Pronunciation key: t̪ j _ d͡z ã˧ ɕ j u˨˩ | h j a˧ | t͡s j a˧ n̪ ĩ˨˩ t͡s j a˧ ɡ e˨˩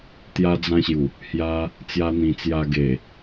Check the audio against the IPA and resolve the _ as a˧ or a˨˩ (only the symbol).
a˧